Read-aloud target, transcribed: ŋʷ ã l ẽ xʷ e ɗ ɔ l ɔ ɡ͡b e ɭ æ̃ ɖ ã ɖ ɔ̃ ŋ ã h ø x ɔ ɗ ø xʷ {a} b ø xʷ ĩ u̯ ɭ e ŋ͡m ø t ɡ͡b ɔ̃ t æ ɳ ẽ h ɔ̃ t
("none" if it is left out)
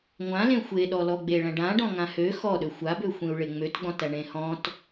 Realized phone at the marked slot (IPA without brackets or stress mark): a